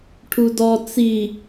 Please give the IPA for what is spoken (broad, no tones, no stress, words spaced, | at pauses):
ʈʰudɔ t͡si